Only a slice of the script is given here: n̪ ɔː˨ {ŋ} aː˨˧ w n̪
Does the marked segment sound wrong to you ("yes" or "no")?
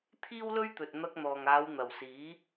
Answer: no